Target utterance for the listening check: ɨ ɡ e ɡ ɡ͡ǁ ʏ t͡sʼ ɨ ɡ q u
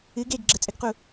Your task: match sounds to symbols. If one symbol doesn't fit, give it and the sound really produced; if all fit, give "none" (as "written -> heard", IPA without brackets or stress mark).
ʏ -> ə